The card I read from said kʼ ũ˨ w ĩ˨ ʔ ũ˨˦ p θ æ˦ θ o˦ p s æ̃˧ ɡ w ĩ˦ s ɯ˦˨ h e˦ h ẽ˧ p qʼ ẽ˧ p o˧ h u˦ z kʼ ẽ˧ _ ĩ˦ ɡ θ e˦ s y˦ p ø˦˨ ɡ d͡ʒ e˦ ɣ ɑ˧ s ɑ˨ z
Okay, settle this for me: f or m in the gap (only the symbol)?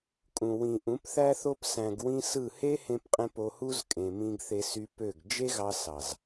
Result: m